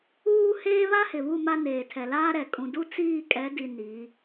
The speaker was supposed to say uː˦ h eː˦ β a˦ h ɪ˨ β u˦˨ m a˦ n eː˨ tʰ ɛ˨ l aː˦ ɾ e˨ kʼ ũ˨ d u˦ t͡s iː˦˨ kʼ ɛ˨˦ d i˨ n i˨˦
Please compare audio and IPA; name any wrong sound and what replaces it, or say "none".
e˨ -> ɛ˨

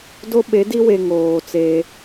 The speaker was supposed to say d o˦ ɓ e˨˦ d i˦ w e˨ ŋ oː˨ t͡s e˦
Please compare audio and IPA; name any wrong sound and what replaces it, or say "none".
none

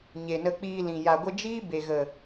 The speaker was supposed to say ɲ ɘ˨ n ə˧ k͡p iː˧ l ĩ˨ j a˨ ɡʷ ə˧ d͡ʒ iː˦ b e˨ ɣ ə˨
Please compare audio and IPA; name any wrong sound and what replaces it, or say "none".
ɘ˨ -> e˨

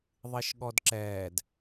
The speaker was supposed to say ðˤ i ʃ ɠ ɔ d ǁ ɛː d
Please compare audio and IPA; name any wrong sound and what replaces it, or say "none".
none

